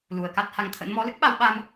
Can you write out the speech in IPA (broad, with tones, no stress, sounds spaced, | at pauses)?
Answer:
l u˨˩ ə̯ k a˦˥ t̚ h a˨˦ ŋ t̪ʰ ə̰˧˥ n m ɔ˨˦ l ɨ˦˥ k̚ ɓ a˧ w ɓ a˧ m